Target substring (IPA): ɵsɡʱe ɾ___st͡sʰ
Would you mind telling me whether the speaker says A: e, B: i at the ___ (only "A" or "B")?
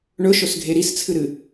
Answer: B